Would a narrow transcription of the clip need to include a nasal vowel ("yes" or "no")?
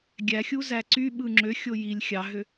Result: no